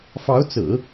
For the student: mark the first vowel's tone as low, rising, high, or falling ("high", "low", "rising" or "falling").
rising